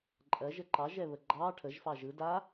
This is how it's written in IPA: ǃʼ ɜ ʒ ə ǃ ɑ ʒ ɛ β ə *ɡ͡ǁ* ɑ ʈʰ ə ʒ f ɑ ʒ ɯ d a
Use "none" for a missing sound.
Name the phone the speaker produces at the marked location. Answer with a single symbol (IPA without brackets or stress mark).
ɡ͡ǃ